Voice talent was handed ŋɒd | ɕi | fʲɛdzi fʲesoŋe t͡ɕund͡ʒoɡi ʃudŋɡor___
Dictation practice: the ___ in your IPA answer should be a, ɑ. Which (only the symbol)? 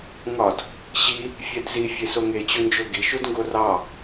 ɑ